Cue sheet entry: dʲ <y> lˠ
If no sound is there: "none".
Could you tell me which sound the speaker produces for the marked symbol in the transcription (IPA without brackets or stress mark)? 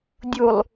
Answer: u